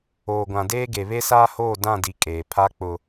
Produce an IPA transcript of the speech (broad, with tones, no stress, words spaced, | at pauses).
oː˨ɡʷã˨deː˦ ɡe˨βe˦saː˦hoː˦˨ dã˦˨di˨ kʼeː˨pʰa˦ k͡pʊ˦